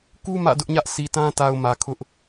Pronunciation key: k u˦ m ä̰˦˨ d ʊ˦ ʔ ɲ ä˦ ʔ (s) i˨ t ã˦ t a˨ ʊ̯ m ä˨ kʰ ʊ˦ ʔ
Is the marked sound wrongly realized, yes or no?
no